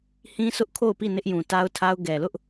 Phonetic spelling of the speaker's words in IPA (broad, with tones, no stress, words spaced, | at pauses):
hĩ˦sʊ˦ʔkʰo˦˨ʊ̯pi˦˨ nɪ˦ʔjũ˨ta˦ʊ̯tʰa˦ʊ̯ ɡɛ˨lʊ˦ʔ